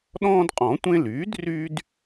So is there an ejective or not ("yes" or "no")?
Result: yes